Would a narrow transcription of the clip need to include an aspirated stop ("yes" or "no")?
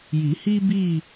no